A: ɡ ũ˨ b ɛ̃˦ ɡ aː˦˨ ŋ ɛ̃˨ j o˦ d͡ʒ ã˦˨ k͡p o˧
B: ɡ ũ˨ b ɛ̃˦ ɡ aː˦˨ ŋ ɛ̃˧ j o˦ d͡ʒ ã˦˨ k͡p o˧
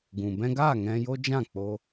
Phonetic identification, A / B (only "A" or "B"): B